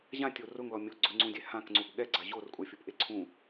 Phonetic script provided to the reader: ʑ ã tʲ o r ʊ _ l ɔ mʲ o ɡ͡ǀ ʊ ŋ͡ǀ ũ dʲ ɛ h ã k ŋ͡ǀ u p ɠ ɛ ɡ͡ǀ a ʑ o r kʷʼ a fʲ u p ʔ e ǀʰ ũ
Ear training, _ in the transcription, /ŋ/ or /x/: ŋ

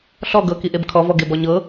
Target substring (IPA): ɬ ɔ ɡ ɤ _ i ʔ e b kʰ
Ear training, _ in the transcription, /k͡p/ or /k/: k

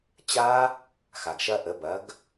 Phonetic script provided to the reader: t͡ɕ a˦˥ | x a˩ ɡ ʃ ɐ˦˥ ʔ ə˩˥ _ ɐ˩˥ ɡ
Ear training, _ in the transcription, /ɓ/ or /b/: b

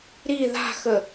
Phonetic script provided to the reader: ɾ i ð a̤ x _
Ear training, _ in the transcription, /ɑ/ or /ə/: ə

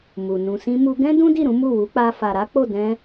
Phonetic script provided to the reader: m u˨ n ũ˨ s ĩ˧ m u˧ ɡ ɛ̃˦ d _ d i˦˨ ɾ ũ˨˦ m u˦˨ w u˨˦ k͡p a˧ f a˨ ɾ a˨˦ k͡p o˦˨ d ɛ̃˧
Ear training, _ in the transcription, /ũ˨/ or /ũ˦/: ũ˦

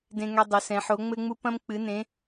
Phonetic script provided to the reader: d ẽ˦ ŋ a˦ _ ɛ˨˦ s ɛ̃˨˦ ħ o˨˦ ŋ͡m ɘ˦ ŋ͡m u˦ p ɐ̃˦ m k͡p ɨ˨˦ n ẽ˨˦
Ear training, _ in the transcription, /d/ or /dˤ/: dˤ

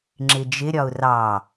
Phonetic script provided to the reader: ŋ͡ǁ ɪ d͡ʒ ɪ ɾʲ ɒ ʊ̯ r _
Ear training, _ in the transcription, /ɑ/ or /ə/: ɑ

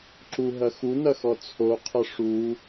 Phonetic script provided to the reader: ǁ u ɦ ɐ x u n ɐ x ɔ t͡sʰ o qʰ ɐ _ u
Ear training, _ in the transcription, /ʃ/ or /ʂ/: ʂ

